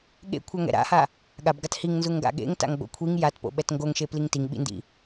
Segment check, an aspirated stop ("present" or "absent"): present